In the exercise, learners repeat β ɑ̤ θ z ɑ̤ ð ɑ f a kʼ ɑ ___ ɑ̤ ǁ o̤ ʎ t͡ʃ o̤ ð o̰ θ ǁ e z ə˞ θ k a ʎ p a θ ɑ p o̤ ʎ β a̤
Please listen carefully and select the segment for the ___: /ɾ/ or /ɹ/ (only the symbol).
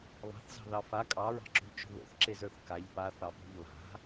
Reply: ɹ